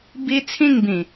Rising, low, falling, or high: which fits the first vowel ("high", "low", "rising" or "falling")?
high